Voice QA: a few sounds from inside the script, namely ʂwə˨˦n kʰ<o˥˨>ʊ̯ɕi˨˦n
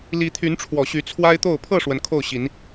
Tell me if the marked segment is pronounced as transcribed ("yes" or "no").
yes